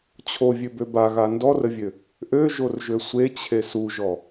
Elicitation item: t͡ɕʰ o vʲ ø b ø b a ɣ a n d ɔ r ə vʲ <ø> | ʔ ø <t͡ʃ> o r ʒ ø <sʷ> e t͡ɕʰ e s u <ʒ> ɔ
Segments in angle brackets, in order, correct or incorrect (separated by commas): correct, incorrect, correct, correct